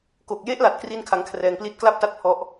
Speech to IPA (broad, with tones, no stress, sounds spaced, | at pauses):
k o˨˩ k̚ j e˦˥ ʔ l a˨˩ t̚ k r i˥˩ n kʰ a˦˥ ŋ kʰ r ɛː˧ ŋ p l i˥˩ t̚ k l a˥˩ p̚ t a˥˩ t̚ pʰ ɔ˦˥ ʔ